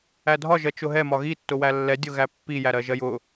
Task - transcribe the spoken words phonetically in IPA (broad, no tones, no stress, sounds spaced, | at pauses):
æ dʱ ɒ ʒ ɜ t͡ʃ ʊ ɦ ɛ m ɒ ɣ i tː ʊ w æ lː ɛ dʲ ʊ ɣ æ pː i j æ ɾ ɜ ʒ ɜ j ʊ